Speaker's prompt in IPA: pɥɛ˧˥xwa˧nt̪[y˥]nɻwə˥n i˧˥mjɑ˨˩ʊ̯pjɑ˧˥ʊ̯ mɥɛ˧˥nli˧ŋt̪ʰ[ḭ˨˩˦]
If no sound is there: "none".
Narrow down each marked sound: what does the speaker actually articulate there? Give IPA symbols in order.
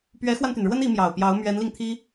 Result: y˩, i˥

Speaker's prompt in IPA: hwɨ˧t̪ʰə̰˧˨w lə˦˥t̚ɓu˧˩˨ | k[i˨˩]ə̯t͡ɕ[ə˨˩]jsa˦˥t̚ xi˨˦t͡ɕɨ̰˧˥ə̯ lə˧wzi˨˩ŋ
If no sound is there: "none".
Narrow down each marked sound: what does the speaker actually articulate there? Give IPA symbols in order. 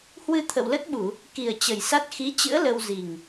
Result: i˨˩, ə˨˩

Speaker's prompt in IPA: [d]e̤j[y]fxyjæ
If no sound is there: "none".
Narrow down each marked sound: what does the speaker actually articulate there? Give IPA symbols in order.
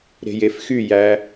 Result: ɾ, e

